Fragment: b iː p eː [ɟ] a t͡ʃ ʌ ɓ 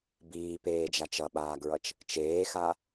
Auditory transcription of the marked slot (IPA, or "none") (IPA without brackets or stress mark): d͡ʒ